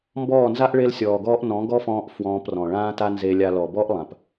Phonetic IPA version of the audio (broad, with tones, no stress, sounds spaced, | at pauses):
m b ɔː˦˨ n z a˦ ʔ ɭ e˦ l sʲ ɔː˨ ɡ ɔː˦ ʔ n ɔ̃˨˦ ɡ ɔ˦ f ɔ̃ː˧ ʔ f w ɔ̃ː˧ p r ɔ̃˨ ɭ ãː˦ t a˦ n z e˧ lʲ a˧ l ɔ˨ b ɔ˦ ʔ lˠ ã˨ p